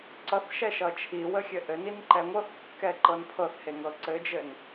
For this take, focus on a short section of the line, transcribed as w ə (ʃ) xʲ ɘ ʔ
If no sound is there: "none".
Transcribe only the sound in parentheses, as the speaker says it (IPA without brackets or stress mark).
none